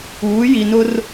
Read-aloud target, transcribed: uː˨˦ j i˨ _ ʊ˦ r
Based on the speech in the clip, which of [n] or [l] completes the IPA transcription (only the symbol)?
n